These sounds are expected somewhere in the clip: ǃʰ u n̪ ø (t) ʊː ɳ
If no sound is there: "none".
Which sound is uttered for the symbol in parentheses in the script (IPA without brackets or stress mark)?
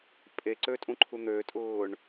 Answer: tʼ